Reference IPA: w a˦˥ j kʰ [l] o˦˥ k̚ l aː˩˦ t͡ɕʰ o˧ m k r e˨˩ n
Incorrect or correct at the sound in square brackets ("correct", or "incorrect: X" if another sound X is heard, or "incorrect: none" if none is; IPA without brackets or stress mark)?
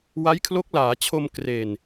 correct